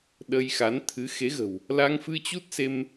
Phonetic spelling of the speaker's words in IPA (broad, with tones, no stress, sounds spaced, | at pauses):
ɗ ə˧ j x a˨˦ n t̪ʰ ɨ˨˦ x e˨˦ ɣ ə̤˨˩ w | l a˧ ŋ f ɨ˧ t͡ɕ u˦˥ t̚ s e˧ m